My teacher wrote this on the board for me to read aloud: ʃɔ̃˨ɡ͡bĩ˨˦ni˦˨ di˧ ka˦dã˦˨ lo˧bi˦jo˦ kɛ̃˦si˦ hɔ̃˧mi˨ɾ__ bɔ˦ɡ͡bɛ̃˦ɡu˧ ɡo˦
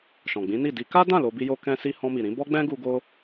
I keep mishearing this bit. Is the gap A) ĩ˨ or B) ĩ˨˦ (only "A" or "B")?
B